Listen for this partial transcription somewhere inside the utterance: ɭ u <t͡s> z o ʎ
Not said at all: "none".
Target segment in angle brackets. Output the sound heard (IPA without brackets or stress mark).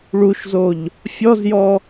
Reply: ʃ